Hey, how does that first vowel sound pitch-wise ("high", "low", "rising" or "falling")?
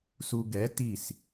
low